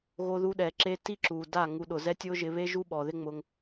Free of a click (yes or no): no